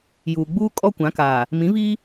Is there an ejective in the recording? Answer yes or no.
yes